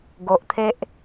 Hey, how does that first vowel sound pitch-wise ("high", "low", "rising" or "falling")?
low